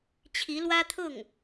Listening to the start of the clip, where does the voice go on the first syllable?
rising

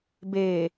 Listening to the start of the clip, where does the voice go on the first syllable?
low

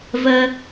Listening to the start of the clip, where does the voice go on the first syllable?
high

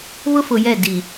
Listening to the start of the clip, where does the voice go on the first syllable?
high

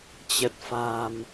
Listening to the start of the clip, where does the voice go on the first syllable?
low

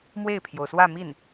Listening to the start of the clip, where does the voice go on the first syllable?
falling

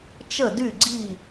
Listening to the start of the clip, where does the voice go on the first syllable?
falling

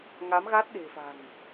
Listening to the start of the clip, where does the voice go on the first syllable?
rising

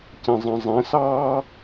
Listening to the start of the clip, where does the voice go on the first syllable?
low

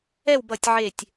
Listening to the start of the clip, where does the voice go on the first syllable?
falling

